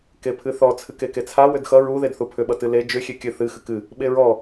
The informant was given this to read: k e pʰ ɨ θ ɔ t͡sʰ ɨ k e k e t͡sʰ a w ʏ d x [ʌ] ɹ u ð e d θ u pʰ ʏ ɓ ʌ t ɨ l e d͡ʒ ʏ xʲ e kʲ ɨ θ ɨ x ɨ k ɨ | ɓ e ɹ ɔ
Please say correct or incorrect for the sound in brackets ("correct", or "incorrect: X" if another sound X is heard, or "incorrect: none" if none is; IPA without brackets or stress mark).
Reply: correct